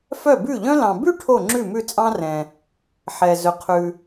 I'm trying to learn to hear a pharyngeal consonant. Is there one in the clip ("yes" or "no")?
yes